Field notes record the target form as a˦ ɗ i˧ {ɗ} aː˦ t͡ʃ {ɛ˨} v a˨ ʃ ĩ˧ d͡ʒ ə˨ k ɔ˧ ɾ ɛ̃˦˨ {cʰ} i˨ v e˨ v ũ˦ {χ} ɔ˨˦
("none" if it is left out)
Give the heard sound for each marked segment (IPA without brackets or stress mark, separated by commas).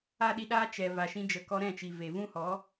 ɗ, ɛ˨, t͡ʃ, h